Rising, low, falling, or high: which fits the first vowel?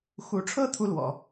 rising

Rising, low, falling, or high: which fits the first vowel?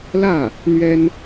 falling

